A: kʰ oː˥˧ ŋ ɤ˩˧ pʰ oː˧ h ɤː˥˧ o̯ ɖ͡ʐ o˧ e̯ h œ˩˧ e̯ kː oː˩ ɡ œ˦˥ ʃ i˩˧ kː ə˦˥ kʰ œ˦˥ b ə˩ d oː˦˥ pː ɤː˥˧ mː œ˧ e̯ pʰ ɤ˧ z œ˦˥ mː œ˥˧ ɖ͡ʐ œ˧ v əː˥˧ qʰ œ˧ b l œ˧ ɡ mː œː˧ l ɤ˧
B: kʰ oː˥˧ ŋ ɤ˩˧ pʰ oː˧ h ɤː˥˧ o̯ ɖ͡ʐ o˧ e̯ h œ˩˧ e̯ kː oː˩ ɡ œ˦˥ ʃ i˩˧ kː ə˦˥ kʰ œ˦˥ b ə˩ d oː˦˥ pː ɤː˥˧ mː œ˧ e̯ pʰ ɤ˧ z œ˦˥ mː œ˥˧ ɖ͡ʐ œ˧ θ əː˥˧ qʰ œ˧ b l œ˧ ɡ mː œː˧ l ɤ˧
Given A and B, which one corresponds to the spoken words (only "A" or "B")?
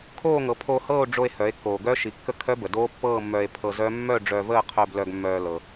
A